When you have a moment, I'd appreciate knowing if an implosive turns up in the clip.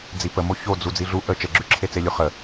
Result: no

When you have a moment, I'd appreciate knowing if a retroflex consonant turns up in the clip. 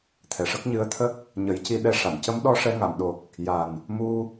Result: yes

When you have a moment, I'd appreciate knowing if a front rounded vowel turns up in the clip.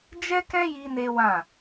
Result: no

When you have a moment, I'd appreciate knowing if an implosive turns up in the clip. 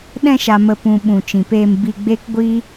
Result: yes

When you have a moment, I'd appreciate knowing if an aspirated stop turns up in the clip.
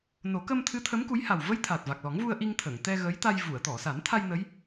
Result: yes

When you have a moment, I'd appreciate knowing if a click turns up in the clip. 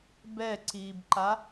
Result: yes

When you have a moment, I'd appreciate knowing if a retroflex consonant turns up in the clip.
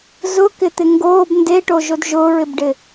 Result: yes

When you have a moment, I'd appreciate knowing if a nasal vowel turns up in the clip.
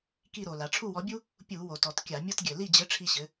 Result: no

